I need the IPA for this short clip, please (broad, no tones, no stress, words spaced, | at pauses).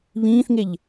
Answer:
βĩːθŋeʎ